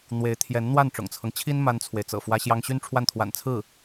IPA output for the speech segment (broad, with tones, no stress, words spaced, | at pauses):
n̪we˧˥ɪ̯t̪ʰjɛ˧˥n n̪wa˥˩nʈ͡ʂʊ̰˨˩ŋt͡sʰɤ˦ŋt͡ɕʰi˥n ma˥nt͡sʰwe˨ɪ̯ t͡sɤ̰˨˩ fwä˥ɕjɑ˥ŋ ɕy˥nʈ͡ʂʰwa˥˩nt̪ʰwa̰˨˩n t͡sʰɹ̩˥˩